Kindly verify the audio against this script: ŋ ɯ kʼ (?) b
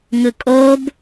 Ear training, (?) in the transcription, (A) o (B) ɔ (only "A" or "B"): A